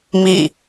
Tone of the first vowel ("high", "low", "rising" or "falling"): falling